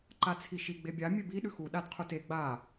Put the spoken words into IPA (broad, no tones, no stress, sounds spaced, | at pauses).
ǃ a t͡sʰ i ʃ i ɡ͡b e bʲ a mʲ ʉ b i ɗ ʉ x u ɗ a d qʰ u t e ɡ͡b a